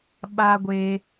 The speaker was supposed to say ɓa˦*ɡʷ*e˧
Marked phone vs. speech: correct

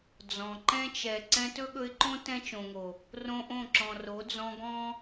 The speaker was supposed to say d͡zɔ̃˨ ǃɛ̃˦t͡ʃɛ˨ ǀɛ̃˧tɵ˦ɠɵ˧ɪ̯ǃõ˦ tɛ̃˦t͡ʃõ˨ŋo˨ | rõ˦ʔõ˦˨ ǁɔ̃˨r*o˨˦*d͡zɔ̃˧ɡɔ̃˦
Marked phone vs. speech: correct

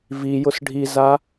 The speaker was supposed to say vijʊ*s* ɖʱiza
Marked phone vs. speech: correct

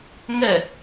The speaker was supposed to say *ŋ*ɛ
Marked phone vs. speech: correct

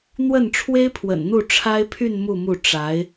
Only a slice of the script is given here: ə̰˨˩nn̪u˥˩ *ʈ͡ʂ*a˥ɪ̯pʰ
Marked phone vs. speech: incorrect: ʈ͡ʂʰ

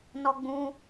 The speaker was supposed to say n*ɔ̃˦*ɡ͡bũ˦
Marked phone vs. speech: incorrect: ɔ˦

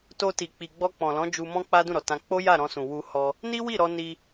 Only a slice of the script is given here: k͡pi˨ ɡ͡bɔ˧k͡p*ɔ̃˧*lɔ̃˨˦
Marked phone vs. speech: incorrect: ɔ̃˨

